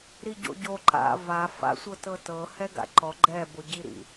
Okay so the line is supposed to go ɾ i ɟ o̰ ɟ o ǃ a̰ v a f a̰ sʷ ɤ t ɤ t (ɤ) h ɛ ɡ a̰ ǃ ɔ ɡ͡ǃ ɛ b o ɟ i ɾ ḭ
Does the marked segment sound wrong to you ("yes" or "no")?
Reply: no